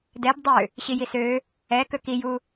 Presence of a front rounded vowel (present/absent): present